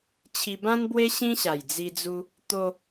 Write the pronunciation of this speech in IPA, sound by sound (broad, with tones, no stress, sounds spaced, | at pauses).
t͡ɕʰ i˧ b ã˦ n b w e˦ ɕ ĩ˦ ɕ a˨˩ j d͡z i˧ d͡z u˦ | t̪ o˧